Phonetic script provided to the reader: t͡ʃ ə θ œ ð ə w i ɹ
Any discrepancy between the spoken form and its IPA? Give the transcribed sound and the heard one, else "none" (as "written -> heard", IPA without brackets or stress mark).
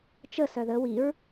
θ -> s